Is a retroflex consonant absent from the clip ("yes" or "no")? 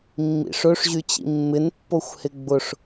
no